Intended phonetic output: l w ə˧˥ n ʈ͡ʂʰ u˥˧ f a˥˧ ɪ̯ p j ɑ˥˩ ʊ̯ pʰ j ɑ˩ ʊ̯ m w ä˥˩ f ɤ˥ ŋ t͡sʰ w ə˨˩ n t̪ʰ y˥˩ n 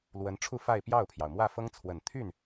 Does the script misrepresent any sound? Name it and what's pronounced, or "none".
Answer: none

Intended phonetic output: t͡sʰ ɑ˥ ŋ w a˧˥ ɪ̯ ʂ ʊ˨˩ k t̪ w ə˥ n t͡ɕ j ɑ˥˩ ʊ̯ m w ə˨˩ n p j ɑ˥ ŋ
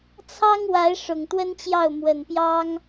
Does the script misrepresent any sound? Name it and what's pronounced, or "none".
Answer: k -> ŋ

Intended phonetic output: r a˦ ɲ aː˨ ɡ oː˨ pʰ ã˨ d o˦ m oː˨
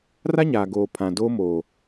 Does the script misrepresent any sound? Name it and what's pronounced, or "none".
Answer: none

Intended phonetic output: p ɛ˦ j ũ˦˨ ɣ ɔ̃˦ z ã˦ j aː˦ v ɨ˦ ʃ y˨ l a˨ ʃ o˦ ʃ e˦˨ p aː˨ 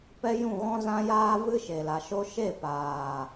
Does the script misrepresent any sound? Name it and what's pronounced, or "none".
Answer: y˨ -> e˨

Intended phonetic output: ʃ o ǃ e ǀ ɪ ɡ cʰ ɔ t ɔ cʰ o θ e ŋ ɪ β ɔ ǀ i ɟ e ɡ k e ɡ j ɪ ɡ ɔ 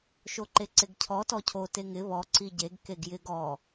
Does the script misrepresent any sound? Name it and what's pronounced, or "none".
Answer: θ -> t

